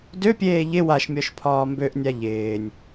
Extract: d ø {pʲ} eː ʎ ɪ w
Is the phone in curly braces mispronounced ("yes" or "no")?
no